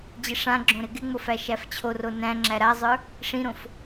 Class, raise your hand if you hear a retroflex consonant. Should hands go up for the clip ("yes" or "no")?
yes